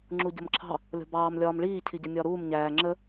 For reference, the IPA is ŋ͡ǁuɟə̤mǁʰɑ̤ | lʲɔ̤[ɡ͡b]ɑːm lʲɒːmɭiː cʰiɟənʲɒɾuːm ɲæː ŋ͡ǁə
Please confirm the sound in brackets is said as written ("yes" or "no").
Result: no